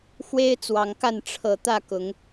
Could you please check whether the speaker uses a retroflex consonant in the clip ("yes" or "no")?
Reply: yes